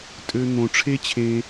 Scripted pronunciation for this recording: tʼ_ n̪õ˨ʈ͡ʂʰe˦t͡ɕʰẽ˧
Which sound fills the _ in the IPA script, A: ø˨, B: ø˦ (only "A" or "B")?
A